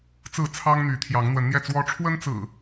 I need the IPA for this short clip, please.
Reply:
t͡s ɹ̩˥˨ t͡sʰ ɑ˦ ŋ n̪ y˨˦ t̪ʰ j ɑ˨˦ ŋ n̪ w ə˨˦ n n̪ j ɛ˥˨ t͡s w ɔ˦ ʈ͡ʂʰ w ə˦ n t͡s ɹ̩˨˩

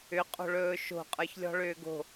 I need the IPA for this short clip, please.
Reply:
ʏ qʼ o̤ ɭ ɵː ʃ o̤ qʼ ə˞ ç lʲ ɔ̤ ɭ ʏː ɡ o̤

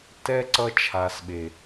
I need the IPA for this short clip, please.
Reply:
t ɛ˧ ǀ ʌ˧ t͡ʃʰ a˨ s ɓ e˨

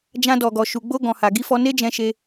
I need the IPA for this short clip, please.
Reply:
d͡ʒ ã˧ d ɔ˨ ɡ ɔ˨ ʃ u˨ ɡ͡b o˧ ɡ ɔ̃˨ h a˨ ɡ i˧ f ɔ˧ n e˦ d͡ʒ ɛ̃˧ ʃ e˧

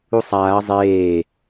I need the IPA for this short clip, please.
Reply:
u sˤ aː ɐ̯ zˤ eː

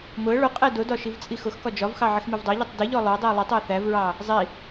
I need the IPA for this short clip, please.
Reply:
m ʊ ə̯ ɭ ʊ qʼ ɛ d ʊ d ɒ ʃ i v t͡sʼ i x ʊ x k ɒ d͡ʒ ɒ v x ɑ ʕ ɪ x m i v dˤ ɜ ʎ i tˤ d ɪ ʎ ɔ lˠ ʊ ə̯ dˤ i ə̯ lˠ ɛ tˤ ɪ ə̯ θ æ v ɹ ɑ | zˤ i

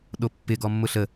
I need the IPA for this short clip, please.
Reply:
ɗ o pː ɪ ɡ ɔ mː ʊ ɬ ə

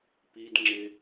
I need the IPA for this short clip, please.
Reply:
p i d ŋ͡ǁ ɪ

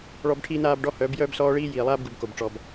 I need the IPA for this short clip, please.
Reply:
ɭ ɔ˦ b ʈʰ iː˦ n aː˦ b ɖ ɔ˦ h œː˨˦ b j œː˦ b s ɔː˦ ɭ iː˦ j iː˨ lˠ aː˦ b ɡ u˨ b k o˨ b ʈ͡ʂ ɔ˨ b

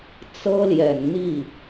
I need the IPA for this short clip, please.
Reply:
t͡s ɤ˥ l j ɛ˨˩ n n̪ i˥˩

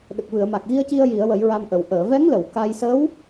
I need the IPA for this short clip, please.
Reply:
ɗ ə˨˩ k̚ v ɨ˨˩˨ ə̯ m a˨˩ k̚ ɣ i˧ ə̯ c i˧ ə̯ j i˨˩˦ ə̯ w ə˨˩˦ j ɹ a˧ m ʔ ə˨˩ w ʔ əː˨˩˨ v ɛ˧˥ ŋ l ə˨˩˨ w k a˧ j s ə˧˥ w

